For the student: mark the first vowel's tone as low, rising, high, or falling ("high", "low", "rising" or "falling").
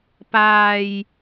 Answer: low